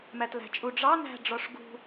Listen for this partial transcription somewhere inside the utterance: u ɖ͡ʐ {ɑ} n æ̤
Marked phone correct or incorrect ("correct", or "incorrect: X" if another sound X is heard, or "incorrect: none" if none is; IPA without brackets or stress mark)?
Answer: correct